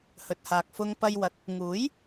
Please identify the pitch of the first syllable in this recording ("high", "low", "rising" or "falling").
low